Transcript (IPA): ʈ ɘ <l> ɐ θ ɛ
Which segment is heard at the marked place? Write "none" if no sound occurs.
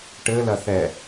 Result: l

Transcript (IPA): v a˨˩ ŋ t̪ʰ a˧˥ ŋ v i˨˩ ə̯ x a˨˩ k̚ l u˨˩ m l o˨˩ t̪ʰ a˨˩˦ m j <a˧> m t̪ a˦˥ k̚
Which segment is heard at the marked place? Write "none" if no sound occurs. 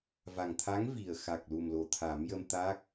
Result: ə˧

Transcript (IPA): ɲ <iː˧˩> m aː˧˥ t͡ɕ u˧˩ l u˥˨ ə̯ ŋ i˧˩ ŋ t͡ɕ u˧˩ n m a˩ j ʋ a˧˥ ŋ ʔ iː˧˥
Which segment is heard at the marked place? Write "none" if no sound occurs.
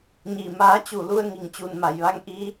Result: iː˧˩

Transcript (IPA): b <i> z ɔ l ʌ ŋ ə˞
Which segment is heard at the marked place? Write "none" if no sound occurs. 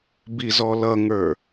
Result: i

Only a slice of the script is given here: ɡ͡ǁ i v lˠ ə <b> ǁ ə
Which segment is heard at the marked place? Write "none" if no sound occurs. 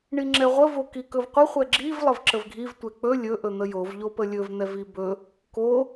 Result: v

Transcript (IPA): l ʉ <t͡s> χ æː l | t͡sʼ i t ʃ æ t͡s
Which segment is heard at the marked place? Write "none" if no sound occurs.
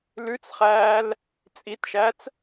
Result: t͡s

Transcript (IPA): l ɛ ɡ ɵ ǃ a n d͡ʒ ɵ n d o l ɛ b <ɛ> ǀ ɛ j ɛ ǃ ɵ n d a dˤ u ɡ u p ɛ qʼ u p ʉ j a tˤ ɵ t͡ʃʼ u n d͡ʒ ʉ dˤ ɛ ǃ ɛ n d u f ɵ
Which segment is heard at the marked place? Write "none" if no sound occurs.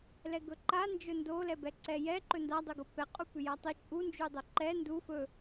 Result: ɛ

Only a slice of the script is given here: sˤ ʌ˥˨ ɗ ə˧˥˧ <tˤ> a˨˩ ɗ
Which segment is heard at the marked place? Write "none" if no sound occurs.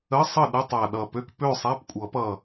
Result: tˤ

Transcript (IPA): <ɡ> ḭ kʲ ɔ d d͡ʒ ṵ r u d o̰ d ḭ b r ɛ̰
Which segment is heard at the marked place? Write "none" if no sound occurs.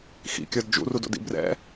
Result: x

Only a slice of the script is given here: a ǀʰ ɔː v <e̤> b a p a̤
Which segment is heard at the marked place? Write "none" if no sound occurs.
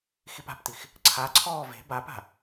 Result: e̤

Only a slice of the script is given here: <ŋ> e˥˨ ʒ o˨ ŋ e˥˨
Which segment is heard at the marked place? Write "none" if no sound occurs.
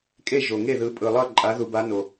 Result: kʼ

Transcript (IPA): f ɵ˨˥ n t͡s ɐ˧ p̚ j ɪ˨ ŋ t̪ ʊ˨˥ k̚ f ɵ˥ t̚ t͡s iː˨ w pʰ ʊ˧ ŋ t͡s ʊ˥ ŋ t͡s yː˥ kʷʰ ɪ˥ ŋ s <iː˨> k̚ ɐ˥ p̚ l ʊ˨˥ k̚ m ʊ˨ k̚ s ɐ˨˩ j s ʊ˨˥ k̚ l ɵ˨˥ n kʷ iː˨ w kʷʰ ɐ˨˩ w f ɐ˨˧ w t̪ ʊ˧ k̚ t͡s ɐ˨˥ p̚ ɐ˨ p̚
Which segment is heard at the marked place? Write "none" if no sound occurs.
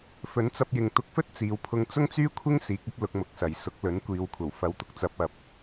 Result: iː˨˥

